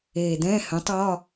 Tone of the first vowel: low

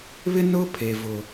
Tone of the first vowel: high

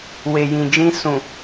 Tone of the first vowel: low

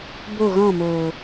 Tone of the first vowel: falling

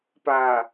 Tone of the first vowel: low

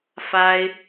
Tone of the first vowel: high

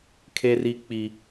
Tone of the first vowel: high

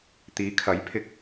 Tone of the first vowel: rising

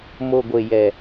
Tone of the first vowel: low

